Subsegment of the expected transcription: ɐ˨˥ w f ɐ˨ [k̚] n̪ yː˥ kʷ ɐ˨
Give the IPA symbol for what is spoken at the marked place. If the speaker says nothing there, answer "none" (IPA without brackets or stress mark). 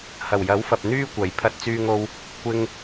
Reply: p̚